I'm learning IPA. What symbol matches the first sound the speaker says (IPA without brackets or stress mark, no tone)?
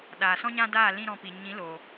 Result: ɗ